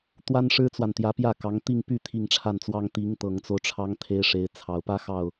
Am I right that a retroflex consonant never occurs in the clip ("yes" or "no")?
no